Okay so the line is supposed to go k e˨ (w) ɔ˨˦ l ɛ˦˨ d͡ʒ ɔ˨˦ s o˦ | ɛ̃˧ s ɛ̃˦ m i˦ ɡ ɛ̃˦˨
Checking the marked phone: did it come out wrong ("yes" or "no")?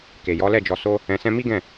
yes